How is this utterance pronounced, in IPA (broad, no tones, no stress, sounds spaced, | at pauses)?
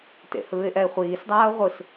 t ḛ h ɯː ɪ̯ ʔ ɛ ɪ̯ χʷ iː s dˤ aː ʊ̯ ʁʷ ɯ s